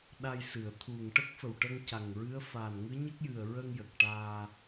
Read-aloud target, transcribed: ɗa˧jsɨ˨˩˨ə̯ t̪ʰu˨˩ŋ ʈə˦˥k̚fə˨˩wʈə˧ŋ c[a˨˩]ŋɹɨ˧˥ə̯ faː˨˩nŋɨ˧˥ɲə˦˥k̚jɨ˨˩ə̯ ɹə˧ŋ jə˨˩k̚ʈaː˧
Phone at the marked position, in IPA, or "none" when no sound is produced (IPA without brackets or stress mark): a˨˩